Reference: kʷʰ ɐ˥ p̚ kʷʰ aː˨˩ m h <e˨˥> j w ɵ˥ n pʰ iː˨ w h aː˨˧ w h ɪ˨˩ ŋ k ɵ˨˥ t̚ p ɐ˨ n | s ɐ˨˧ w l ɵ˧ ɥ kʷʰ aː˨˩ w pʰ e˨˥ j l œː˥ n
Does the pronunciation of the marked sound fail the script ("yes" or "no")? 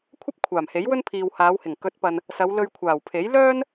no